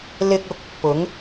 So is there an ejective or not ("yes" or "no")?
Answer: no